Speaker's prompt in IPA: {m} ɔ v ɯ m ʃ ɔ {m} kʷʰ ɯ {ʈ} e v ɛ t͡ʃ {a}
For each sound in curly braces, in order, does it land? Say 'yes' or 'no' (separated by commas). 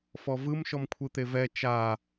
no, yes, no, yes